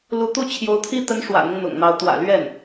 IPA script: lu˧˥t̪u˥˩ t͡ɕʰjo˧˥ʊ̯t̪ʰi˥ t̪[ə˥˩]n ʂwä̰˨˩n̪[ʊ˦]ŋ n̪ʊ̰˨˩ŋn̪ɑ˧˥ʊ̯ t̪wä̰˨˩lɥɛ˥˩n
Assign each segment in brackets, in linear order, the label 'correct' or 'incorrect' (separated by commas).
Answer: incorrect, correct